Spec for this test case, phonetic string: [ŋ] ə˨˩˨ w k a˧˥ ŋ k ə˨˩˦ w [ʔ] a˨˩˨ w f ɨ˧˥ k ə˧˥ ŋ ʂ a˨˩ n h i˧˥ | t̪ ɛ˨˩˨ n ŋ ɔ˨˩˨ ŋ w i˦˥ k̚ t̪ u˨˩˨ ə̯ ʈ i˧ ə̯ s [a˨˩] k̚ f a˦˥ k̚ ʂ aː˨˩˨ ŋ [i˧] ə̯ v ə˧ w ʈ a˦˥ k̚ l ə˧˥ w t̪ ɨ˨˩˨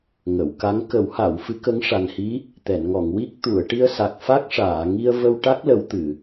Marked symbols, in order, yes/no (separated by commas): yes, no, yes, yes